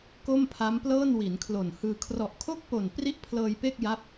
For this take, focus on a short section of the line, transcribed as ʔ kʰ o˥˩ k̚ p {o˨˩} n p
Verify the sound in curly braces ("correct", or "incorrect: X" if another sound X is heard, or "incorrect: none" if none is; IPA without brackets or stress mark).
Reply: correct